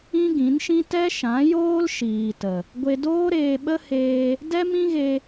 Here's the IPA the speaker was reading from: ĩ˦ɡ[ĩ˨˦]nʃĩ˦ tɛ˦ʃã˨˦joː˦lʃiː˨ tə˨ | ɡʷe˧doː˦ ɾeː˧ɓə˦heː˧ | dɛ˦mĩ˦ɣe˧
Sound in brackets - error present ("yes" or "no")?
no